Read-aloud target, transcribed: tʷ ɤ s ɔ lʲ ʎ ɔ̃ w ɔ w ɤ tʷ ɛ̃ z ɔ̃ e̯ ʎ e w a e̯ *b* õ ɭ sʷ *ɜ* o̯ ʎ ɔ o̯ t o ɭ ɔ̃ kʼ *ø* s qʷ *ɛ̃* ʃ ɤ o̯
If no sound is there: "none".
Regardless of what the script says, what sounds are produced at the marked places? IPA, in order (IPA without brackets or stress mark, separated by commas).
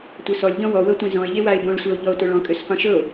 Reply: b, ɜ, ø, ɛ̃